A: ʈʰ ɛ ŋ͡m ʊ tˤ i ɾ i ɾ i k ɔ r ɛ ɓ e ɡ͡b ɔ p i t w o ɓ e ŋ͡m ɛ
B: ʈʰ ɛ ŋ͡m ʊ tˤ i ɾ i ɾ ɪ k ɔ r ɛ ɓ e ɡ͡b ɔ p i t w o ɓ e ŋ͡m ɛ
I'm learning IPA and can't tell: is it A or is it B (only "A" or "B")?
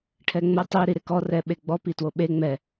B